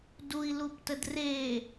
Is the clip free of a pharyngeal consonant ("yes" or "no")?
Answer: yes